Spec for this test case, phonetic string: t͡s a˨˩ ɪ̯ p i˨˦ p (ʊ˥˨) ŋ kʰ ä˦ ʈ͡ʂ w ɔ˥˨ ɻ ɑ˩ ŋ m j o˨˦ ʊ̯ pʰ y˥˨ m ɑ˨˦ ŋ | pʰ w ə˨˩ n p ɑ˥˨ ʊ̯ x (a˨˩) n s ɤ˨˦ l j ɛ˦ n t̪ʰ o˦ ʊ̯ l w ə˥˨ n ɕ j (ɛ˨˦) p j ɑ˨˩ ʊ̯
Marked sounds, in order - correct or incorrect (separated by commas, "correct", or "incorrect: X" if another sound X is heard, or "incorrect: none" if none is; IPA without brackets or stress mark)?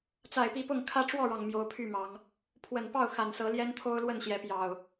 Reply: correct, correct, correct